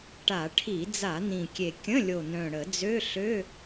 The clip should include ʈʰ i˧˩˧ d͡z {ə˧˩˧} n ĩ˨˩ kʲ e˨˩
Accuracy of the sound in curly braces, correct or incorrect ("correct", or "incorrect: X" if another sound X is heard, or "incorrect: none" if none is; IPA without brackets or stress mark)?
incorrect: a˧˩˧